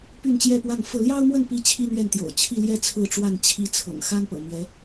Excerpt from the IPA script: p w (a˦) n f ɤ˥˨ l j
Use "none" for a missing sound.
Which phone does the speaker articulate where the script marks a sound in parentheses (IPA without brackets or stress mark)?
a˥˨